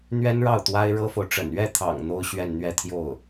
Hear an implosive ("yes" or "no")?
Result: no